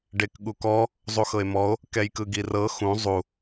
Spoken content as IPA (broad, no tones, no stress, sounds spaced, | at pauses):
ɖ e k ɠ u k ɔ | zˤ u x ɤ e̯ m ɔ o̯ | k ɛ j k ɯ ɡ i r ɤ x ũ zˤ u